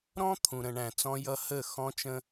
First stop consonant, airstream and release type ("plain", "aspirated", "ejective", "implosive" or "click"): aspirated